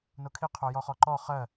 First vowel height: mid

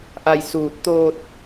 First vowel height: low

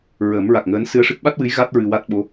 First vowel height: mid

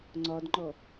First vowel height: low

